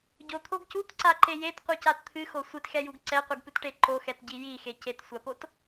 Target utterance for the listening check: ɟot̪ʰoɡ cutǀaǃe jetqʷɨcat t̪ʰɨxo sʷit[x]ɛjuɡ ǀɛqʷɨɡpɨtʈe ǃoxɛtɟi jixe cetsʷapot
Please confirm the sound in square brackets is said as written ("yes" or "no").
yes